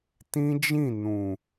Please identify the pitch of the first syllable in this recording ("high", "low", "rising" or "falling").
high